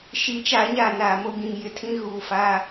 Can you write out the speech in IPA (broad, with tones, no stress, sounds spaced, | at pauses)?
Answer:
ʃ i˨˦ t͡ʃ a˨˦ ɲ a˨ n aː˨ m o˦ ɡ ĩ˨ ŋ j ɪ˦ tʰ ĩ˦ ɣ uː˨ f aː˦